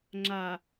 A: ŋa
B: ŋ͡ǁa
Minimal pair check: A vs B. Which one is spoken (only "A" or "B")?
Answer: B